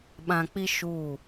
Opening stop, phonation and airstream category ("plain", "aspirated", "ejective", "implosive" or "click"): implosive